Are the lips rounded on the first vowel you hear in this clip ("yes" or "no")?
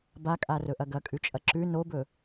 no